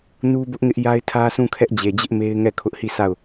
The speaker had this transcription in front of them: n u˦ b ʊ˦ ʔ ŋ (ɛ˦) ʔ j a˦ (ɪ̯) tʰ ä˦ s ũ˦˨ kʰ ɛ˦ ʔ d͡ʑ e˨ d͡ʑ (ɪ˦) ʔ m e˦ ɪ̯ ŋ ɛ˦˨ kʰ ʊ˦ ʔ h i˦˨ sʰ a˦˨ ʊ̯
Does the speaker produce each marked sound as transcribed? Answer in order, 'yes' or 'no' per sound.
no, yes, yes

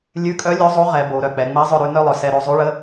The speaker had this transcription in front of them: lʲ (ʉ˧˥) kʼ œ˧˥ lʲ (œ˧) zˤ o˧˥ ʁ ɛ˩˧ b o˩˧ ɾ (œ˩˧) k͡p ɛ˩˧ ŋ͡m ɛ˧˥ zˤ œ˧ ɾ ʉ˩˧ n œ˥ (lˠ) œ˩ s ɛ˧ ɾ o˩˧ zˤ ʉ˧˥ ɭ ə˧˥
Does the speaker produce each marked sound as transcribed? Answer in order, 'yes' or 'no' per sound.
yes, no, no, yes

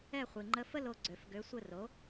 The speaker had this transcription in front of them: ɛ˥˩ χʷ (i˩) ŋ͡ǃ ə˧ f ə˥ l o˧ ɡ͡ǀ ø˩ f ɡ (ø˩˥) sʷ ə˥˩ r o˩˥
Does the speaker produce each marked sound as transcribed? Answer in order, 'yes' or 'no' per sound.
yes, yes

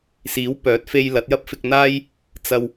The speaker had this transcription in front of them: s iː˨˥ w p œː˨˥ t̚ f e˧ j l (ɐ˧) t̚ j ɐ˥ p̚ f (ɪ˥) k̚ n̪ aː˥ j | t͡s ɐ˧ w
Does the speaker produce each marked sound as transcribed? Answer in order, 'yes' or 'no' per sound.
no, no

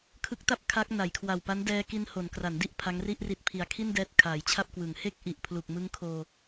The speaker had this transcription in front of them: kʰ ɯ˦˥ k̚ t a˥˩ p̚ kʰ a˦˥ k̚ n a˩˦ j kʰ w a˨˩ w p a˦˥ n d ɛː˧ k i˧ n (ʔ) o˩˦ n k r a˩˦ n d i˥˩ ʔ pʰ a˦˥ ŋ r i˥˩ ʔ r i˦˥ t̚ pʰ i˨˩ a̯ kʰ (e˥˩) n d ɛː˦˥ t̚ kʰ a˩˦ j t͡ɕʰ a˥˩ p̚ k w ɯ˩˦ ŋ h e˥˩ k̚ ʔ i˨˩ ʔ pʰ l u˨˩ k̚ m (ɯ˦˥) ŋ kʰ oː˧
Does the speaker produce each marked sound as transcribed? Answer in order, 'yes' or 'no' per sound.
no, no, yes

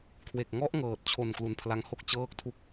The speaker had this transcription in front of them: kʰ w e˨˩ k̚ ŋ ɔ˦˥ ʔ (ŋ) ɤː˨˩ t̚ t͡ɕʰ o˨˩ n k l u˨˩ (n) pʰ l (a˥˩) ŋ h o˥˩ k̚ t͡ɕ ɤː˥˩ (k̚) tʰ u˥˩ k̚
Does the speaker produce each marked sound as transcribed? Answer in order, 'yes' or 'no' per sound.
yes, yes, no, yes

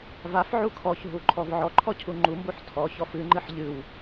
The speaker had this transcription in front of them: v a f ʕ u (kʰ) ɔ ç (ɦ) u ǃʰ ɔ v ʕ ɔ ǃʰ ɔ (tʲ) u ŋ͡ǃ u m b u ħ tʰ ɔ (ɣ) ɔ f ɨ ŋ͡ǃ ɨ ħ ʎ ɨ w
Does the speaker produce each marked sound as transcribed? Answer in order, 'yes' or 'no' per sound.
yes, yes, no, no

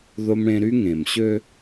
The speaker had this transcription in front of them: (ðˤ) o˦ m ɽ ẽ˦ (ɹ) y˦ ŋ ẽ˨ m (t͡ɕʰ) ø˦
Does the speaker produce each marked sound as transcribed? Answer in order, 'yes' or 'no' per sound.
no, no, no

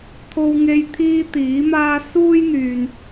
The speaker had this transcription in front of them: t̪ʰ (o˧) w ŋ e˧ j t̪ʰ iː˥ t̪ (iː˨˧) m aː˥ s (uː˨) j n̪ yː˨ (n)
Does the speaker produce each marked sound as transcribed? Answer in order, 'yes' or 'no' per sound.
yes, no, no, yes

